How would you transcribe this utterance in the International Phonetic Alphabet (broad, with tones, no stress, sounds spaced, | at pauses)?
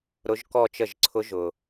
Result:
ɾ ʊ˦˥ ʒ k ɔ˥˧ t͡ʃ ə˥˩ ʒ ǀʰ ʊ˦˥ ʒ ʊ˨